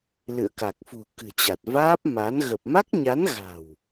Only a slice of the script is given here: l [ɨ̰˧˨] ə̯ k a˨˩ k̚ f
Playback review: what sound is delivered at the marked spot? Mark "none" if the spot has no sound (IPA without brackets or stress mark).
ɨ̰˧˨